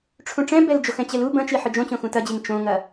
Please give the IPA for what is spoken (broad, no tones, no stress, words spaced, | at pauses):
ʈ͡ʂʰũʈ͡ʂɛ̃bɛld͡ʒox ɛ̃t͡ɕɛlu bɐ̃t͡ʃi ħɯd͡ʒõt͡ɕõxũ tɐd͡ʑiŋ t͡ʃõŋɐ